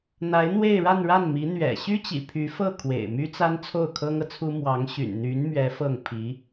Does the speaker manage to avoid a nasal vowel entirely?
yes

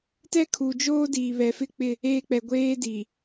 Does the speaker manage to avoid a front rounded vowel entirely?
yes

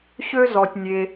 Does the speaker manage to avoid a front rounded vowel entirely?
no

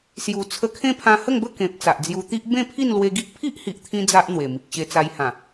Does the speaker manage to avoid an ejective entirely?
yes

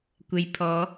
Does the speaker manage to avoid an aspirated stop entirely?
no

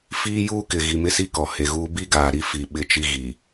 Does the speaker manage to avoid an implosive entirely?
no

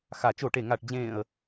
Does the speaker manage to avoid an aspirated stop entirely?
yes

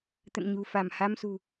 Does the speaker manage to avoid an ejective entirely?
yes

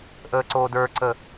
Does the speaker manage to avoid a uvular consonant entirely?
yes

